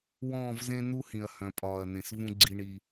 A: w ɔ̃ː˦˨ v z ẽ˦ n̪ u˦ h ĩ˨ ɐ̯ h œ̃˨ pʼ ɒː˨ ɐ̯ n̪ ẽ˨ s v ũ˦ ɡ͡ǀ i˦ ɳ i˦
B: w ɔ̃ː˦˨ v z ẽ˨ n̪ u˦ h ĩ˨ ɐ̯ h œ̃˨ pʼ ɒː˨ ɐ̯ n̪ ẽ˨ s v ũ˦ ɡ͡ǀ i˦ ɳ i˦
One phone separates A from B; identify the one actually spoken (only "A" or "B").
A